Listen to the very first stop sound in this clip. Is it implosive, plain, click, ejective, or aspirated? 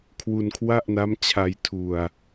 aspirated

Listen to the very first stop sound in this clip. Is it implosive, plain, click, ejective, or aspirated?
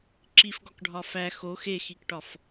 click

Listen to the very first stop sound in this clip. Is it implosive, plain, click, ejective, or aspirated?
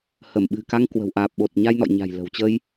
implosive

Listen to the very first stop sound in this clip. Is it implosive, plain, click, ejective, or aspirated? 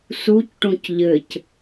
plain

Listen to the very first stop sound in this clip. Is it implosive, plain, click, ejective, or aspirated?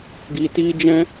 plain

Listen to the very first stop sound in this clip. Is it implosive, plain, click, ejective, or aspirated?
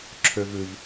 click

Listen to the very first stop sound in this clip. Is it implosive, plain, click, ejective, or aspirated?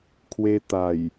aspirated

